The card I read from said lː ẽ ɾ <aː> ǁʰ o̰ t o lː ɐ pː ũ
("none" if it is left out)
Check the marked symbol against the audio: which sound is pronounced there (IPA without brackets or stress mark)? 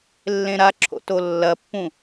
a